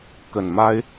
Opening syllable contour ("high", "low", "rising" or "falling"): low